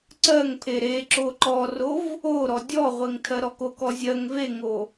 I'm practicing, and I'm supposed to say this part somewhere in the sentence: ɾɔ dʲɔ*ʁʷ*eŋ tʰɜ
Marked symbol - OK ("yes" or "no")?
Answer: yes